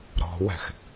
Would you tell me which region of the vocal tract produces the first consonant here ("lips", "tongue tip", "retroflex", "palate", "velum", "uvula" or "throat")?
tongue tip